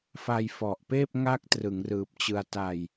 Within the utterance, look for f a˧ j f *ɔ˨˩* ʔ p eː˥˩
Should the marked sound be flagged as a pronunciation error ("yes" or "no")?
no